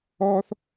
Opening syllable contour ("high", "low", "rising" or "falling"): high